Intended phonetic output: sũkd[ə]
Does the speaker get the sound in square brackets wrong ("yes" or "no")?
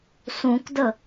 no